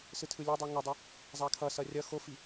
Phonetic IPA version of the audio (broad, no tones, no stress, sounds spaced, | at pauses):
s ɯ tʰ ɯ lʲ e dˤ u ŋ o dˤ ɛ | zˤ a kʰ ʌ s ʌ rʲ ʌ x o f i